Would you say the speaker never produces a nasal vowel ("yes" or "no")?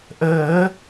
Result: yes